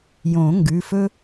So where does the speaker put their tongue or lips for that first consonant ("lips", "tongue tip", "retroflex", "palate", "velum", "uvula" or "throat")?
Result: palate